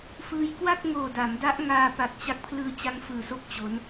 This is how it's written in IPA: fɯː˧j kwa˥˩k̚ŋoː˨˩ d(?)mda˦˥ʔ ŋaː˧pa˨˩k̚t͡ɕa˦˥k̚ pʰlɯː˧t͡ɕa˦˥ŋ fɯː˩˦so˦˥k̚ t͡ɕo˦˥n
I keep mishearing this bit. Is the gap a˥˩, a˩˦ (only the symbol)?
a˩˦